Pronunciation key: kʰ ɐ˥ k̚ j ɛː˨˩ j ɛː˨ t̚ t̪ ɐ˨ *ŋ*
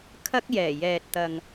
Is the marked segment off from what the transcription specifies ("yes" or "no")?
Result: no